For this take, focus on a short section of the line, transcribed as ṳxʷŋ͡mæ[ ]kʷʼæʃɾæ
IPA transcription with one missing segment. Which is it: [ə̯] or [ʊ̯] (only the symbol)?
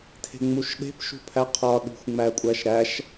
ə̯